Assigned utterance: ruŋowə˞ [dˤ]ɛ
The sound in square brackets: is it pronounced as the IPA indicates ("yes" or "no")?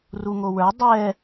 yes